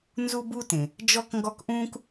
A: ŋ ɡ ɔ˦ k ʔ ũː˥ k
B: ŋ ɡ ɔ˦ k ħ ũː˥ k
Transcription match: A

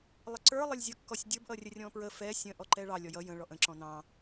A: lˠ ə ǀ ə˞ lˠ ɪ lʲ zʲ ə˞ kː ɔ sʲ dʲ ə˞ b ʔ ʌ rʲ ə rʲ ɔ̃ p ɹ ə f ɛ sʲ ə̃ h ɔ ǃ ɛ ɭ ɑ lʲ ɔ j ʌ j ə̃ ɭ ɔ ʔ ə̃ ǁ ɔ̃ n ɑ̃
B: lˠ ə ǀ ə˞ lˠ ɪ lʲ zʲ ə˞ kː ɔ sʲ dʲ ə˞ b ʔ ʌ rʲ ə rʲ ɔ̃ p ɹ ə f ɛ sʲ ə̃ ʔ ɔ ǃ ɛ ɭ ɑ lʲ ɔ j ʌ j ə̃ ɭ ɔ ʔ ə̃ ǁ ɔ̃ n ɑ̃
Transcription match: B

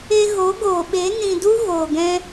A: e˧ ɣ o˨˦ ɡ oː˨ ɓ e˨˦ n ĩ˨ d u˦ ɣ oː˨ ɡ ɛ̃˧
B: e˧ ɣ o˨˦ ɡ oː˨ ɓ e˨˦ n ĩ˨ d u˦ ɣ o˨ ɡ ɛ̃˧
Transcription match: A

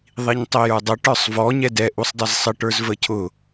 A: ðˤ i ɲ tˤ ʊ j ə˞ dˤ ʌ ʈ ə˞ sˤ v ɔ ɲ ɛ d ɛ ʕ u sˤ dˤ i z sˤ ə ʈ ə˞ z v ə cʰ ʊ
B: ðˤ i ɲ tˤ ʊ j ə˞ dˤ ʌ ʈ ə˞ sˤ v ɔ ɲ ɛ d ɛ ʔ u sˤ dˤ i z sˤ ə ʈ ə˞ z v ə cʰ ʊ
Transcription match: B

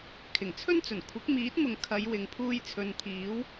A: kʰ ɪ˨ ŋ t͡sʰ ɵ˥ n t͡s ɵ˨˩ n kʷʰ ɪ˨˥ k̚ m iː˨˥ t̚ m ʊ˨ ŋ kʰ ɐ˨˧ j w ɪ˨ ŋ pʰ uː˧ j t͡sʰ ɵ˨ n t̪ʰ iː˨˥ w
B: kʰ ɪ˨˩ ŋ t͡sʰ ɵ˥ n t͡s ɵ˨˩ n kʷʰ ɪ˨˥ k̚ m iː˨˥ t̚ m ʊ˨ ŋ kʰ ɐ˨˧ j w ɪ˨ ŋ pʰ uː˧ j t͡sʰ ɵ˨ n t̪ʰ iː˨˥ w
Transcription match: B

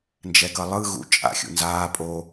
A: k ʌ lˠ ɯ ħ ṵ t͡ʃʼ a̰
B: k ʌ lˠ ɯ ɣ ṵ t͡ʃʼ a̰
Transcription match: B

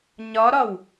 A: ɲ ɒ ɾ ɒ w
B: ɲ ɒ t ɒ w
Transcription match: A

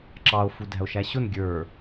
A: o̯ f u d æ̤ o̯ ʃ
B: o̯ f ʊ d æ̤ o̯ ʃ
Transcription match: A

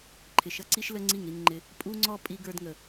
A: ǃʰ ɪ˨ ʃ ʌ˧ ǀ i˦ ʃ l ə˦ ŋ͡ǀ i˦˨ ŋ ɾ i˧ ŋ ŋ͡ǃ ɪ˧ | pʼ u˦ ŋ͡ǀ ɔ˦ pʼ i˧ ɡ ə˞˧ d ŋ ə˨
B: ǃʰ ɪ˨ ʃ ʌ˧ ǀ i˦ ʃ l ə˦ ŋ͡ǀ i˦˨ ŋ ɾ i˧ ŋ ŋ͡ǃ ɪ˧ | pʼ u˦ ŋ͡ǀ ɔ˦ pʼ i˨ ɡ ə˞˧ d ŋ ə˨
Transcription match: A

